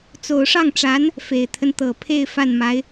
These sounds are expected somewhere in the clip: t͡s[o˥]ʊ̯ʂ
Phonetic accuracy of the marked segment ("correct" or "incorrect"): incorrect